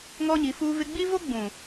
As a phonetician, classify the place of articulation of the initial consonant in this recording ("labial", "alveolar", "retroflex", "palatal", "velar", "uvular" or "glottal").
velar